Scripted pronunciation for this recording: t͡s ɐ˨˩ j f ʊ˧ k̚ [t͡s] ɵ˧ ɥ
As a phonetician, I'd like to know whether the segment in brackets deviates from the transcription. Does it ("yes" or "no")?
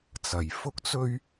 no